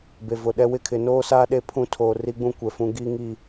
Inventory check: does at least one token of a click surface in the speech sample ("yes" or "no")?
no